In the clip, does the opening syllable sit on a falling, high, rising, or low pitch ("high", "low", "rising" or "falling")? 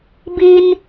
high